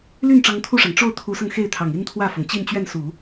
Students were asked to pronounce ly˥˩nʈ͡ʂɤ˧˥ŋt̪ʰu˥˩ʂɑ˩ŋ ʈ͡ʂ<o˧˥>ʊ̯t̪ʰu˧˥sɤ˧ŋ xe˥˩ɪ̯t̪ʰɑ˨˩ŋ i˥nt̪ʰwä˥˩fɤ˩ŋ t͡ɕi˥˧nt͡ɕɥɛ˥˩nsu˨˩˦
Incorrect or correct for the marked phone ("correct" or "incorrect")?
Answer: incorrect